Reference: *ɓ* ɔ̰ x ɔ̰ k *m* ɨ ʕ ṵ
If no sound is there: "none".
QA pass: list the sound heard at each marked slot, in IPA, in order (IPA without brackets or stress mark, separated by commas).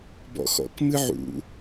b, m